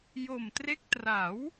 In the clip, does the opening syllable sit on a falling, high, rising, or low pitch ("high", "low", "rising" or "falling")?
low